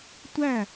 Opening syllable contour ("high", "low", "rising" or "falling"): falling